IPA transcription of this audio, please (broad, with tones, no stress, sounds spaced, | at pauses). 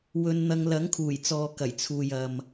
w ɵ˧ n n̪ ɐ˧ ŋ l ɐ˨˥ ŋ kʰ uː˨˩ j t͡s ɔː˨ k ɐ˨˩ j t͡sʰ uː˨ j ɐ˨ m